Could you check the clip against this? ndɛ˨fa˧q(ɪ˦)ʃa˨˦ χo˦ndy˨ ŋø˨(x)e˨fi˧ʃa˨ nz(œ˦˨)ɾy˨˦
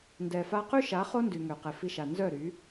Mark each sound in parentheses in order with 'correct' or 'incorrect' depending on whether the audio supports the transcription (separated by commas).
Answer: incorrect, incorrect, correct